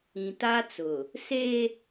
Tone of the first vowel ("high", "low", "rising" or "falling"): low